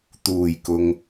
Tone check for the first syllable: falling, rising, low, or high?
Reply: low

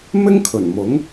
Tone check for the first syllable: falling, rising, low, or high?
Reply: high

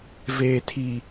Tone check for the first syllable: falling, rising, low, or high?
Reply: low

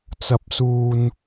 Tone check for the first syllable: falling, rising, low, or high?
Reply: high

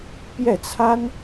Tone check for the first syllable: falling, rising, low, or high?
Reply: falling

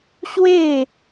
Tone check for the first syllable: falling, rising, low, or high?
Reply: falling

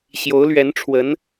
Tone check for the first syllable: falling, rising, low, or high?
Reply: rising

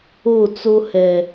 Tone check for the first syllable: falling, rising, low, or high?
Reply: falling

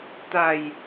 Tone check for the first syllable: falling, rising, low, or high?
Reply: low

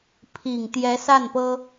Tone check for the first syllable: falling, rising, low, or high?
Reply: low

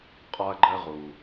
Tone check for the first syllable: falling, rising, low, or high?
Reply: high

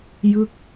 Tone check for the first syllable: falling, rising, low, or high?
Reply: falling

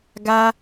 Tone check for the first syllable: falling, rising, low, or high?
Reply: high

